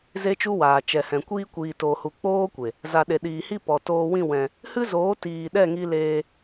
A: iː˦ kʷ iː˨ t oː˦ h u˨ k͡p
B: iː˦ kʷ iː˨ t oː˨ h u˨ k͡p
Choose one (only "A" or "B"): B